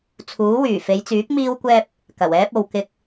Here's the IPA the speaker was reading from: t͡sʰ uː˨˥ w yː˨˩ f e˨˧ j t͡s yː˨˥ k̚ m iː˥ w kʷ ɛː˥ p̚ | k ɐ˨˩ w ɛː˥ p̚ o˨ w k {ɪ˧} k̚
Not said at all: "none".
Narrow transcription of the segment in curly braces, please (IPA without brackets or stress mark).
ɪ˧